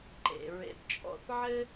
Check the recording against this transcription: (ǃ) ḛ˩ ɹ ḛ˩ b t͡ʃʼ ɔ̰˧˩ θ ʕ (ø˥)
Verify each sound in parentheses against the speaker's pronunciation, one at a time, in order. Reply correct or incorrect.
correct, incorrect

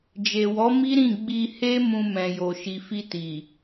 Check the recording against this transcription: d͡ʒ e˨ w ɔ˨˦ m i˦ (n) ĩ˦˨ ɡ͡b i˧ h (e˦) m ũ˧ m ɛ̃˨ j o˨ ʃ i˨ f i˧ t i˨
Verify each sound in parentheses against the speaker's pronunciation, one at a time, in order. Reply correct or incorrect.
incorrect, correct

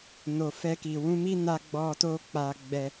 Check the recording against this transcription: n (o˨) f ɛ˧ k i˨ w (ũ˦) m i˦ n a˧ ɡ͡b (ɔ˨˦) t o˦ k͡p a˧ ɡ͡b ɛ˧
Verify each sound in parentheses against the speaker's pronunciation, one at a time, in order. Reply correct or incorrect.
correct, incorrect, incorrect

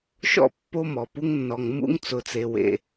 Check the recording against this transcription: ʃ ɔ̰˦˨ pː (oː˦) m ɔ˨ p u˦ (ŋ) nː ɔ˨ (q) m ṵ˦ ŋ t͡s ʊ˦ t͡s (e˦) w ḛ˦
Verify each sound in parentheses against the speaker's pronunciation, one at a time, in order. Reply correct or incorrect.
incorrect, correct, incorrect, correct

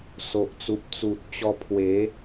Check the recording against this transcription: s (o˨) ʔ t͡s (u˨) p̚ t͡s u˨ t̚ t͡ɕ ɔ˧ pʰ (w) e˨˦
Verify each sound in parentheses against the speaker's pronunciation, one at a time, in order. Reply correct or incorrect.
correct, correct, correct

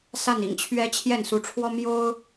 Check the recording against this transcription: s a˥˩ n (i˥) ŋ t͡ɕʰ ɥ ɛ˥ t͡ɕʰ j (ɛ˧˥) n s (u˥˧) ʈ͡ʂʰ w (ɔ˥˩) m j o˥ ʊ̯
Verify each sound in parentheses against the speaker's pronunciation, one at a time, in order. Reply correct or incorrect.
incorrect, incorrect, incorrect, incorrect

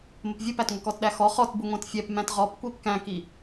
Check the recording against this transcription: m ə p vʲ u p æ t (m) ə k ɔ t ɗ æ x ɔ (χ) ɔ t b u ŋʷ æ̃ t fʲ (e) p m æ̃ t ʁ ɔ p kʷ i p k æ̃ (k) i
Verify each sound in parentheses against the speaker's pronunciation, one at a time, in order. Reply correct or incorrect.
incorrect, correct, incorrect, correct

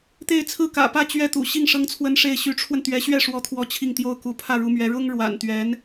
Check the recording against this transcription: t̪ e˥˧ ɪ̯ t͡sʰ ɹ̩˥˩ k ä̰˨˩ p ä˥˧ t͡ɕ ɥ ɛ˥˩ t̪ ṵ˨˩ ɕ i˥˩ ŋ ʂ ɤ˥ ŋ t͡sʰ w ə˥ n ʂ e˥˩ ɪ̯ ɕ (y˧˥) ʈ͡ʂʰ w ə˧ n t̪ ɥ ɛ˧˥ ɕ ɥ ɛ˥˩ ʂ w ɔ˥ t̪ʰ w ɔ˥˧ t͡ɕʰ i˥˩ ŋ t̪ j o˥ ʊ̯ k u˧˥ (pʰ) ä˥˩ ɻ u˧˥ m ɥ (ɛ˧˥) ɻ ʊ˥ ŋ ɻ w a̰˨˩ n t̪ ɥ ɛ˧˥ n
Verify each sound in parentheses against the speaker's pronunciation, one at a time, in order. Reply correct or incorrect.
correct, correct, correct

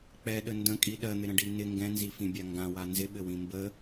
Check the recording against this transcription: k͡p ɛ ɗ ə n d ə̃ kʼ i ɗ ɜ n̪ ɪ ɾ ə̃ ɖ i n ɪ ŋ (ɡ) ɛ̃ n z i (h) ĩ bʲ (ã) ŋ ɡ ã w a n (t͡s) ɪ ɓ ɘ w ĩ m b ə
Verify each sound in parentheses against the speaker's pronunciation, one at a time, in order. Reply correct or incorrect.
correct, incorrect, incorrect, incorrect

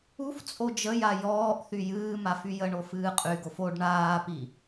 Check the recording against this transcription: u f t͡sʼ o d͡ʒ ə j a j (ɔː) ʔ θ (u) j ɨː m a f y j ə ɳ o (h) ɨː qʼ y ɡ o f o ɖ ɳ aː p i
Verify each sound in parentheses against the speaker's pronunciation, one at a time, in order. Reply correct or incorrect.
correct, incorrect, incorrect

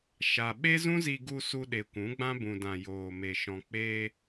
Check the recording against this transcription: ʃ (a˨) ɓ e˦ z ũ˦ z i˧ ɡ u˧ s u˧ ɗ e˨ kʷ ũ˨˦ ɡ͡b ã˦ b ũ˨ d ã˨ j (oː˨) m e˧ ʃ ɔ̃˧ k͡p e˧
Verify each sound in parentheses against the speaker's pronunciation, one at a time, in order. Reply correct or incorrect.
correct, correct

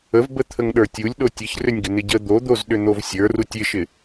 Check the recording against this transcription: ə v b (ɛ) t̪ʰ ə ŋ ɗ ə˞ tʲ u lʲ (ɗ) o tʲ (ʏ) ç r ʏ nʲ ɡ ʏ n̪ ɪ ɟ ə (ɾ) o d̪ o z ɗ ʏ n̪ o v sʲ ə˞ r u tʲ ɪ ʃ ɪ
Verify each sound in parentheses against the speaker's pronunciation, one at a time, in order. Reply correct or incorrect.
incorrect, correct, incorrect, incorrect

